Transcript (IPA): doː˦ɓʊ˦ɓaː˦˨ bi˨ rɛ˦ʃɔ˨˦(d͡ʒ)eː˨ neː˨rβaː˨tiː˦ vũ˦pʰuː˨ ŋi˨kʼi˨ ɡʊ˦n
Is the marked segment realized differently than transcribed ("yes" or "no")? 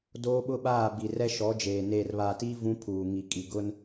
no